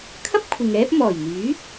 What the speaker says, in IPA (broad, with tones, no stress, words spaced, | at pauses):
kʰɐ˥p̚ kʷʰɪ˨ŋɛː˥p̚ mɔː˨˩jn̪yː˨˥